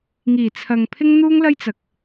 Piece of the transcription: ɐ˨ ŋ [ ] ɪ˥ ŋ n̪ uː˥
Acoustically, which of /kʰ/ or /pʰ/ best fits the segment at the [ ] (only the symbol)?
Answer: pʰ